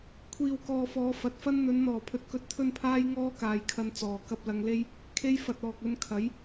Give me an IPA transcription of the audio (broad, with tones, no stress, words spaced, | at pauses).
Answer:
kʷʰiː˨wkɔː˨fɔː˨˧ fɐ˨t̚fɐ˥n n̪ɵ˨˧nn̪ɔː˨˩pʰɵ˨˥t̚ kɵ˧t̚t̪ʰɵ˥npʰaː˥j ŋɔː˥kaː˨jkʰɐ˧n t͡sɔː˨ kɐ˧p̚lɐ˧ŋle˥j | kʰe˧jfɐ˨t̚ ɔː˨k̚ɵ˧nkʰɐ˨˥j